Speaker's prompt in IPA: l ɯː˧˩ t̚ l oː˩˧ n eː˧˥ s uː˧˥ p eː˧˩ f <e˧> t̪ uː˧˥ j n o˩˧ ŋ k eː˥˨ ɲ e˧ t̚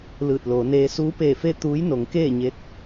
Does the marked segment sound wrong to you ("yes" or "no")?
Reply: yes